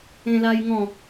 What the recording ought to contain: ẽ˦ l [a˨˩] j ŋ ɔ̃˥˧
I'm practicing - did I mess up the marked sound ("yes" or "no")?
yes